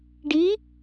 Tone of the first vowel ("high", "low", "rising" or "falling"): rising